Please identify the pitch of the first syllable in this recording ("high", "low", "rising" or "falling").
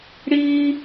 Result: high